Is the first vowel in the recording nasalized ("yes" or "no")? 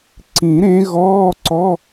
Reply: yes